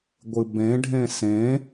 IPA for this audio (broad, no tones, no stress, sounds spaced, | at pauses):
ɡʷ ɨ b ẽ ɖʱ ẽ s ẽ